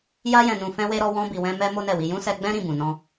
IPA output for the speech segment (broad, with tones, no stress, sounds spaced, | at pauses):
j a˧ j ɛ̃˨ n ũ˨ f ɛ̃˧ w e˧ ɾ ɔ˧ w ɔ̃˧ b i˨ w ɛ̃˧ m ɛ˧ m o˦ n ɛ˦˨ w i˧ j ũ˦ s ɛ˧ ɡ͡b ɛ̃˦ ɾ ĩ˦˨ b ũ˨ n ɔ̃˧